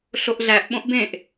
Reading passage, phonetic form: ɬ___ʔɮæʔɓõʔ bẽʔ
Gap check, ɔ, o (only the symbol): o